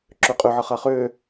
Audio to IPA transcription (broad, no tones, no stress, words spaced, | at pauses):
ǁøqʼø ʕʌχaχøː